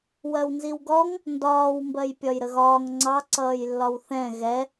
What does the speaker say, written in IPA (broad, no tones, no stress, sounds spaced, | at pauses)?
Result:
w ɜ w n z i w ɡ ɔ ŋ | n d ɒː w m b ɜ j pʲ ɒ j ɾ ə ɣ ɒː ŋ ŋ͡ǀ ɑ ǀ ʌː j lː ɒ w θ ɛ̃ ɣ ɛ